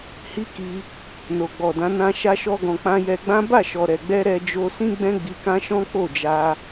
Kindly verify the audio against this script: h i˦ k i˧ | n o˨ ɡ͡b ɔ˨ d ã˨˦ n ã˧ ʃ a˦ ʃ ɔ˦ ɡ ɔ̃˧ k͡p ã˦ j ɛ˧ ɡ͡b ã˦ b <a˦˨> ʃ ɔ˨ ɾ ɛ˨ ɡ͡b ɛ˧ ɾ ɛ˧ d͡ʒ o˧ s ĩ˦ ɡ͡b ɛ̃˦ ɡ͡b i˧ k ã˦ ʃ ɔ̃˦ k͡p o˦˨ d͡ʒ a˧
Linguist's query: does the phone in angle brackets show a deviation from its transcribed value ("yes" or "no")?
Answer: no